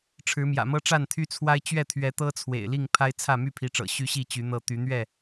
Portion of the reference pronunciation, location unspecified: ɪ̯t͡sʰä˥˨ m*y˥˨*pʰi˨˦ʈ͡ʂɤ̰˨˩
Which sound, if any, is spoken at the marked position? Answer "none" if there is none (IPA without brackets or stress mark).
y˥˨